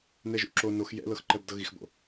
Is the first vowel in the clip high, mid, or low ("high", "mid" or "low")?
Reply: mid